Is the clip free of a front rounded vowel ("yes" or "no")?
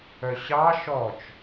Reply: no